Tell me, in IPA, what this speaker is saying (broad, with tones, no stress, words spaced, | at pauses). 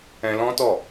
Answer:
ɛ̃˧lɔ̃˦tɔ˦˨